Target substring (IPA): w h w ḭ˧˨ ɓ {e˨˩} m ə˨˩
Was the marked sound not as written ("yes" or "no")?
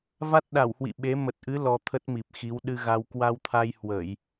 yes